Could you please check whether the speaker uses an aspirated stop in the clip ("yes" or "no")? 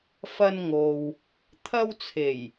yes